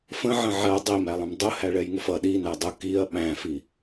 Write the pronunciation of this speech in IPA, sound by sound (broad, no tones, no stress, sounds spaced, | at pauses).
f ə̃ ʕ ə̃ ʕ ɜ dˤ i m æ lˠ ə̃ m dˤ ʊ h æ ɭ ɛ j ŋ ʊ f ʌ ɗ i n æ dˤ ʊ k i ɐ̯ ɓ æ̃ f i